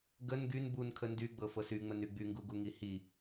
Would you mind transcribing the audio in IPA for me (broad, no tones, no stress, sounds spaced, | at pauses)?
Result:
ɡ ə n ɡ y n b u n kʰ ə n d y ɡ͡b ɤ f ɤ s y ŋ͡m ə n y ɡ͡b y ŋ ɡ u ɡ u ŋ i h i